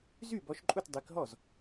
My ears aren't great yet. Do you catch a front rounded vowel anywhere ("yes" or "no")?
yes